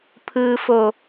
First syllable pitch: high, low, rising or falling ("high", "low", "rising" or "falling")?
low